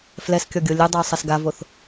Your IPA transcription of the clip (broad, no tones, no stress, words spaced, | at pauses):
flɛskʲɔɡʲo lʲudˤou̯sˤɐs ɡavoθ